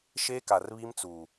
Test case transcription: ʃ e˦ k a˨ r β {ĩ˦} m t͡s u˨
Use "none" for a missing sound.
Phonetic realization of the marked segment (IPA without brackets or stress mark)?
i˦